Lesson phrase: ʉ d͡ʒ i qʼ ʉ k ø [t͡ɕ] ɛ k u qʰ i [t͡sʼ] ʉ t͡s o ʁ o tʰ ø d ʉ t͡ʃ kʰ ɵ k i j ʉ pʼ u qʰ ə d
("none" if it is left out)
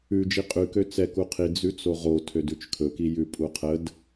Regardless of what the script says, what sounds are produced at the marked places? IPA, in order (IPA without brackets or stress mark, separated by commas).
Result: t͡s, d͡z